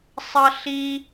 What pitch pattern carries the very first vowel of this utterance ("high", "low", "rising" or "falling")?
high